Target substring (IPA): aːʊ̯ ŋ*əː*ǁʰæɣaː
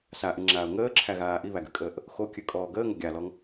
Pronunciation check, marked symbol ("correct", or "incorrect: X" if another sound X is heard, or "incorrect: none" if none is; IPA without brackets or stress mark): correct